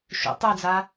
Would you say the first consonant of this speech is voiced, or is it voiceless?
voiceless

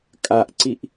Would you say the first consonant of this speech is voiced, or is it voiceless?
voiceless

